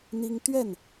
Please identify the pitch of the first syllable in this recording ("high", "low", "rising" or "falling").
high